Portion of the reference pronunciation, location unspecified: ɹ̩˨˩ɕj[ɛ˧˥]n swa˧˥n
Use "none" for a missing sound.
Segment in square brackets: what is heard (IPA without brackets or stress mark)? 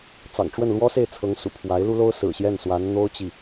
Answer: ɛ˥˩